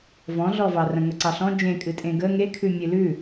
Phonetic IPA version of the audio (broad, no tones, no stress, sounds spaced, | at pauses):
v ɔ̃ ɮ ɔ v ɑ r ə̃ ŋ ə ǀ ɑ ɬ ɔ̃ d͡ʒ ẽ kʼ ɨ tʼ ẽ ɡ ə ŋ e kʰ ʉ mʲ ɨ l ʉ